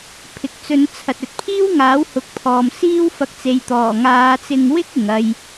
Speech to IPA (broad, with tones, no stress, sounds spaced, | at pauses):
pʰ ɪ˨ k̚ t͡s ɵ˨˧ n t͡sʰ ɐ˨ t̚ ɵ˨ t̚ pʰ iː˥ w ŋ aː˨˥ w h ʊ˨˥ k̚ pʰ ɔː˨ m s iː˥ w f ɐ˧ k̚ t͡s e˨ j t̪ ɔː˨˩ ŋ aː˨˧ t͡s ɪ˧ ŋ w ɪ˥ k̚ ɪ˨ ŋ ɐ˧ j